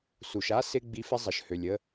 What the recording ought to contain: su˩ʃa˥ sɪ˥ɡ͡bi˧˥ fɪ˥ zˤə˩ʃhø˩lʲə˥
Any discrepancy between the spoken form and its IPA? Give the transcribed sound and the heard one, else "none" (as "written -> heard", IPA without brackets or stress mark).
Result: none